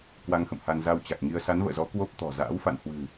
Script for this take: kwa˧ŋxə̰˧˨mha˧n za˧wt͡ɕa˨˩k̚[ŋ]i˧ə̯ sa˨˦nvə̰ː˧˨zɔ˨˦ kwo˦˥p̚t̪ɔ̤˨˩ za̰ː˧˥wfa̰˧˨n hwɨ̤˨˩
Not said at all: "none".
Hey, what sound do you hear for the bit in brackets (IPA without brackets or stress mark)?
ŋ